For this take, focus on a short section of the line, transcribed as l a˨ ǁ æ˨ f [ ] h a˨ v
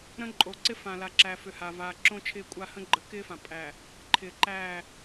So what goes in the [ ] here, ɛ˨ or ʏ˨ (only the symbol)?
ʏ˨